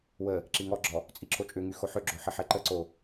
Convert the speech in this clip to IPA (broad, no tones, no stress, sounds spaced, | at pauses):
w ə | ǁ i ŋ ɔ ɡ͡ǁ ɔ | t͡sʼ i ǁʰ o t͡ʃʼ ʏ ŋ y x o ħ ʏ ɡ͡ǁ o ħ ɪ ħ ɛ ǃ ə ǀ o